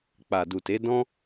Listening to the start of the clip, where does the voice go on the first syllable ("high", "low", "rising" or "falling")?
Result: low